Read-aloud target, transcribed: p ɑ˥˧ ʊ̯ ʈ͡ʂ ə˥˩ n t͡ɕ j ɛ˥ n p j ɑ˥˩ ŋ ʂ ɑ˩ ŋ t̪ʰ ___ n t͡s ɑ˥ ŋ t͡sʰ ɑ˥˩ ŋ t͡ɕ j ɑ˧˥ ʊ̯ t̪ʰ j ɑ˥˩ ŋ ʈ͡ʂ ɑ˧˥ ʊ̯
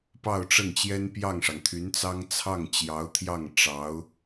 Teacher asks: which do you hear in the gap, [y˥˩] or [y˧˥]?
y˧˥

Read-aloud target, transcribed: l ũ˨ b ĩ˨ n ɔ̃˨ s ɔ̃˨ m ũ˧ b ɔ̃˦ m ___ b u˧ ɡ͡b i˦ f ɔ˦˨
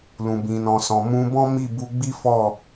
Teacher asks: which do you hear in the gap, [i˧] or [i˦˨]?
i˦˨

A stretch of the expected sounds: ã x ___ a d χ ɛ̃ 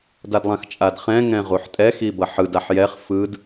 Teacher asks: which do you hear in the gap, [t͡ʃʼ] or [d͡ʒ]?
t͡ʃʼ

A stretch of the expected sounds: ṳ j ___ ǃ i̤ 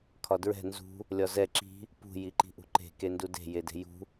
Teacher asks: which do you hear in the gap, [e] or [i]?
i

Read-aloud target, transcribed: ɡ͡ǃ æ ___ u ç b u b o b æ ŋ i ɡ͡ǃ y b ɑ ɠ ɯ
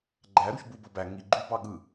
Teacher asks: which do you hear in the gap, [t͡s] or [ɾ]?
ɾ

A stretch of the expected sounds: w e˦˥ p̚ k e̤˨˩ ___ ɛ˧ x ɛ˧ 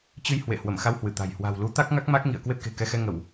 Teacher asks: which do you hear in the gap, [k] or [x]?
k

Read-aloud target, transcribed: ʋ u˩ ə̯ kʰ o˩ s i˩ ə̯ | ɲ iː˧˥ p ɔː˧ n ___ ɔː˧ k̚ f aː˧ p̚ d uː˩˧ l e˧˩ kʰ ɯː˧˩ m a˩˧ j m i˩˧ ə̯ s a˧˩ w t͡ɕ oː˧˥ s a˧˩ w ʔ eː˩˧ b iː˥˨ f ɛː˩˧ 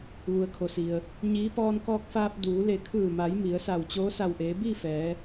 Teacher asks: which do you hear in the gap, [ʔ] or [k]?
k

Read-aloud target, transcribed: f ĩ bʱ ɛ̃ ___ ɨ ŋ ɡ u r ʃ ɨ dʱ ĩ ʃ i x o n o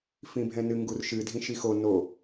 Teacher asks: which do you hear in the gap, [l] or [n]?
n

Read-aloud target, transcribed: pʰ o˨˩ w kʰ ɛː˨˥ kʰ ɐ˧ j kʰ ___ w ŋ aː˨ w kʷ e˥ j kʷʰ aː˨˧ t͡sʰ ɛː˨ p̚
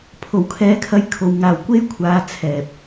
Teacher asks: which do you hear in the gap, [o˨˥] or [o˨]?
o˨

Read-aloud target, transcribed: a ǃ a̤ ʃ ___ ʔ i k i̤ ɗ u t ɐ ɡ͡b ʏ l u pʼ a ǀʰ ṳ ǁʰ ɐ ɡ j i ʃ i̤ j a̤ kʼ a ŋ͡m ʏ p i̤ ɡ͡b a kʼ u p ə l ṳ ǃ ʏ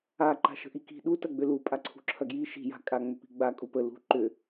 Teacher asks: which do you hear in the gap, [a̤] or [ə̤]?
ə̤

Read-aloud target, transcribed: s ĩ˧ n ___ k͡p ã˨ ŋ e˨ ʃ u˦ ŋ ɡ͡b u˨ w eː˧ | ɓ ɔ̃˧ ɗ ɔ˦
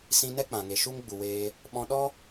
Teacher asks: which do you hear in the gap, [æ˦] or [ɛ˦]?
ɛ˦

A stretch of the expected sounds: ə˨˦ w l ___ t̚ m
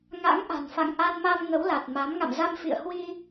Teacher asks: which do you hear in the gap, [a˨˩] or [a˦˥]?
a˨˩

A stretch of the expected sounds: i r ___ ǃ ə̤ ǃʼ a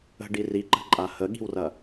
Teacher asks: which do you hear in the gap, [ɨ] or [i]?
i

